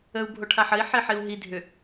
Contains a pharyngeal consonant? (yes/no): yes